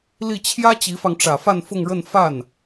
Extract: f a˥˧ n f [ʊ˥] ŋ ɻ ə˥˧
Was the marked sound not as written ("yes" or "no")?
yes